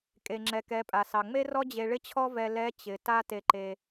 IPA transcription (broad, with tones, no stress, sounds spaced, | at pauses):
kʼ e˩ ŋ͡ǁ ɛ˩ k ɛ˩˧ pʼ a˩ s ɑ˩ ŋ͡m e˥ r ɔ˥ d͡ʑ e˧ ɭ ɪ˥ t͡ɕʰ ɔ˥ v ɛ˧ l ɛ˧˥ t͡ɕ ɪ˩˧ t a˥ t e˧ ǃ e˧